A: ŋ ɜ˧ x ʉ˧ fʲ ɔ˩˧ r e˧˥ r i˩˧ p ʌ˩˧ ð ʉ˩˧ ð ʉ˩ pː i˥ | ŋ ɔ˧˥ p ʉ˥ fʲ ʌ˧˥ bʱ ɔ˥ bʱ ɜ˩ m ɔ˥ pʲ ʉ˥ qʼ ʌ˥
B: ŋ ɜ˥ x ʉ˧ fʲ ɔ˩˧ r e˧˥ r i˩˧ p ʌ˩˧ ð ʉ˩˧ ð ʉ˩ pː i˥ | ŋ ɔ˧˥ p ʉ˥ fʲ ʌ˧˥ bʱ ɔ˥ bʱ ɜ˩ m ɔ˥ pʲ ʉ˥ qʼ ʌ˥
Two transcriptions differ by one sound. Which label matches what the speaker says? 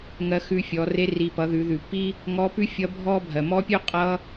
A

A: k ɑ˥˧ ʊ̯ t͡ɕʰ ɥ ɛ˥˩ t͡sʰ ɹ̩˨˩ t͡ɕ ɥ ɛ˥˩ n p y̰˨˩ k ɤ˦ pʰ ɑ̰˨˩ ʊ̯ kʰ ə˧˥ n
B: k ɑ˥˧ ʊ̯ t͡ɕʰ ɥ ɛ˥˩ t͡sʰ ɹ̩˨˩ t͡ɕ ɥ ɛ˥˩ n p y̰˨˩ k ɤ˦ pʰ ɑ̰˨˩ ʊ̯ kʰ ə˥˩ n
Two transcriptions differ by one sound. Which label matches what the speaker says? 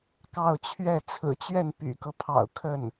B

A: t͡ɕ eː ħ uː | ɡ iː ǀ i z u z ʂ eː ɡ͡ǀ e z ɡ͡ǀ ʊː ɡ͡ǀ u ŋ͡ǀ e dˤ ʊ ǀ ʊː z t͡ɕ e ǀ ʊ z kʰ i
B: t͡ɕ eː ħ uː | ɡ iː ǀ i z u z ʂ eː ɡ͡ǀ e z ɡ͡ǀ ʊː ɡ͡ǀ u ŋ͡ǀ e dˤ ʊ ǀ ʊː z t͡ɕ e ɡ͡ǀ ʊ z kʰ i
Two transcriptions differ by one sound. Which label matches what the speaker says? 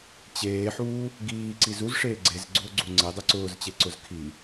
A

